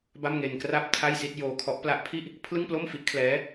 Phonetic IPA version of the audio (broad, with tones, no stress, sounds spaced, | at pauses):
b a˥˩ m ŋ e˧ n k r a˥˩ p̚ tʰ a˥˩ j s i˥˩ t̚ j oː˧ kʰ ɔ˦˥ ʔ p l a˦˥ ʔ pʰ i˥˩ ʔ | pʰ l ɯ˥˩ ŋ p l o˥˩ m f i˦˥ ʔ kʰ l ɛː˦˥